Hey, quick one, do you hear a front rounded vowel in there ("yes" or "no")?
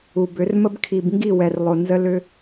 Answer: yes